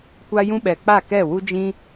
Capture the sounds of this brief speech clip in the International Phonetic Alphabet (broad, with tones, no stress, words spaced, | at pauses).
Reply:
kʷa˧jũ˧ ɓɛ˨ k͡pa˦˨kɛ˦˨wu˦ d͡ʒĩ˦